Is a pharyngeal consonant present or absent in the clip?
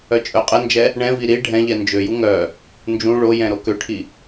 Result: absent